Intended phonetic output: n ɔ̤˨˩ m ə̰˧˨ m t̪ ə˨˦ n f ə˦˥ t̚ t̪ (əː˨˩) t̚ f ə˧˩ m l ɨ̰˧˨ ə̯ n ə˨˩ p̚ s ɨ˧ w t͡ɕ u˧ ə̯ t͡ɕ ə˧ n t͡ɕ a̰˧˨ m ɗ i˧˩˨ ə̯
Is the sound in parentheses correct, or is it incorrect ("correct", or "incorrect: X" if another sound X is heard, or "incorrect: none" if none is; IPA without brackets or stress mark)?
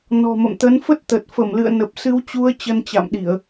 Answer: incorrect: ə˨˩